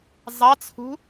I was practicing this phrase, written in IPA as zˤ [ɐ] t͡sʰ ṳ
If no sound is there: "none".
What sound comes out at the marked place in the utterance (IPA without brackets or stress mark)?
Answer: ɑ